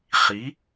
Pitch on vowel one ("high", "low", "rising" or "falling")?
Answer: rising